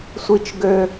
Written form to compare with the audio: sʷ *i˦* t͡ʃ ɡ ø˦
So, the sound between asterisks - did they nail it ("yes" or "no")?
yes